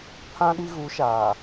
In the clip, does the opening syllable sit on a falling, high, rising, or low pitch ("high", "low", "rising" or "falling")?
high